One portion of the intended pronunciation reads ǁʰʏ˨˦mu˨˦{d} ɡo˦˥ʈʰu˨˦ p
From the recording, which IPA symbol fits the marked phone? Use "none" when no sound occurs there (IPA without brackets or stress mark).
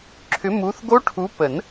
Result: θ